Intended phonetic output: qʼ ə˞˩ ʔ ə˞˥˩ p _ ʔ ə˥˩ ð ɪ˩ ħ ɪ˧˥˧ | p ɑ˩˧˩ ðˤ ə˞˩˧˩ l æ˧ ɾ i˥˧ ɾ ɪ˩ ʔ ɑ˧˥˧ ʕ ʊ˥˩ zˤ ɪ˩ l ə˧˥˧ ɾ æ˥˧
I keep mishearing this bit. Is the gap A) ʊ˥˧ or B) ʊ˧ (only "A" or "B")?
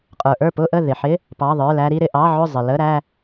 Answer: A